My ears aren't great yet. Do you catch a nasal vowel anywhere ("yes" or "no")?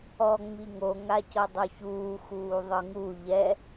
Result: no